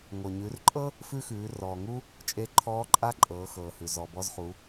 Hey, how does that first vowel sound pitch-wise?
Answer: low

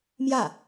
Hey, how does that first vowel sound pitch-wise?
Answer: falling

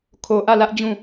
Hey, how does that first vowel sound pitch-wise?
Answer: low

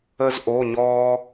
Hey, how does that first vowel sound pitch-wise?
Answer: high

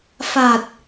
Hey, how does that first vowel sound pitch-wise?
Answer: low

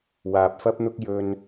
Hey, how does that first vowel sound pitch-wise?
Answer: low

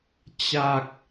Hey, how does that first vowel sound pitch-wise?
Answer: falling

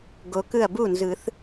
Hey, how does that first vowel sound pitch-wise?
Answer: low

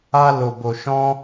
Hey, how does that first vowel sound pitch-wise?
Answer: high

